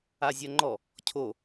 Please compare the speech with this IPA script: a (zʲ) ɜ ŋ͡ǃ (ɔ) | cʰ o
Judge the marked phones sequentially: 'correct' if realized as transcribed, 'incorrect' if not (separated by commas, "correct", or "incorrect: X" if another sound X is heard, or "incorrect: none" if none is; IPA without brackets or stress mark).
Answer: correct, correct